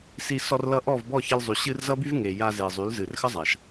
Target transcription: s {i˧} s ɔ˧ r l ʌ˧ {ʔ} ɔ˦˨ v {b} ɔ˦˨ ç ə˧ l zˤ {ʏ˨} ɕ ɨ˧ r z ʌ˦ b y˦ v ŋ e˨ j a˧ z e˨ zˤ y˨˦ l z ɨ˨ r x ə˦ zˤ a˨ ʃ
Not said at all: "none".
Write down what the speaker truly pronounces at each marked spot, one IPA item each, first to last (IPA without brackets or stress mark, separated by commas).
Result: i˧, ʔ, b, y˨